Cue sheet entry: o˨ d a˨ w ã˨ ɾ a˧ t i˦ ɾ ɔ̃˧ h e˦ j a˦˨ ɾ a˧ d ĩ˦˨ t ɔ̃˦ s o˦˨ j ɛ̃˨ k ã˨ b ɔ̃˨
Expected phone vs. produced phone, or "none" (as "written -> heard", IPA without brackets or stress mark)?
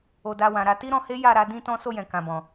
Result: ĩ˦˨ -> ĩ˧